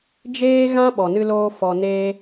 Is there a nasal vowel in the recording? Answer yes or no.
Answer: yes